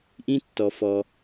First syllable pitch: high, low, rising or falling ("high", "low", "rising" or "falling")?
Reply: high